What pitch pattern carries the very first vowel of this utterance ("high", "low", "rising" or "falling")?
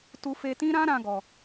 high